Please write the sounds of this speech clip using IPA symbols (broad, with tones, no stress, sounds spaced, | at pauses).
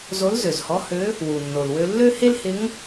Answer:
z o˧˥ l z ø˩ z h ɔ˧˥ h ø˧˥ | w u˩ nː o˩ l w ø˧ lː ø˥ h e˥ l h ɪ˧˥ ŋ